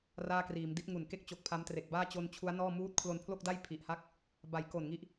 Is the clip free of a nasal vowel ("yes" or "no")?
yes